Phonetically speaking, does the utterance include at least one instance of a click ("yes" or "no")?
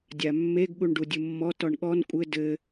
no